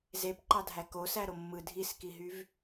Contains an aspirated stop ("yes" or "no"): no